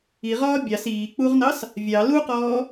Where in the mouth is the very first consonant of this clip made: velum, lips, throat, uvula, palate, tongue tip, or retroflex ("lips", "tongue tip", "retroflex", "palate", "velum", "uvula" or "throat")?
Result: uvula